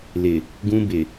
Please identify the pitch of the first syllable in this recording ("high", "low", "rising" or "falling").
low